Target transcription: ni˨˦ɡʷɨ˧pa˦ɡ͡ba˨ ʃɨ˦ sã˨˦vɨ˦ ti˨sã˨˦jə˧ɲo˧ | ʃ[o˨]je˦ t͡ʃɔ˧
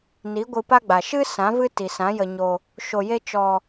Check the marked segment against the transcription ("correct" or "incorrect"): incorrect